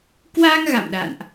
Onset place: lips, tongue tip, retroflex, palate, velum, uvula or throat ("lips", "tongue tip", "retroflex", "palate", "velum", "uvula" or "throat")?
velum